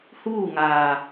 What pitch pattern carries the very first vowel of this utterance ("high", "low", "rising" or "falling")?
falling